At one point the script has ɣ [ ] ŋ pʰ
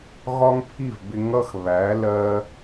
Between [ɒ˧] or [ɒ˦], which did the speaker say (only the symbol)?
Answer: ɒ˦